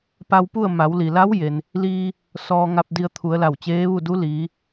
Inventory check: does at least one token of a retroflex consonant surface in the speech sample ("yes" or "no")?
no